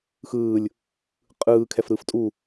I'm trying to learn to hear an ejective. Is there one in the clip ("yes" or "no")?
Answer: yes